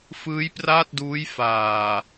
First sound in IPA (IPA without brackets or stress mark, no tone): f